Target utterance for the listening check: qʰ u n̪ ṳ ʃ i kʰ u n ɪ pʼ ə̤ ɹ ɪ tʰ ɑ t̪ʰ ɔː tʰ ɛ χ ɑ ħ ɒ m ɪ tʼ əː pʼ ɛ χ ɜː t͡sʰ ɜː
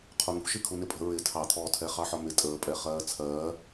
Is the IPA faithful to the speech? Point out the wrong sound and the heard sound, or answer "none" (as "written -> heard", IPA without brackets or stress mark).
none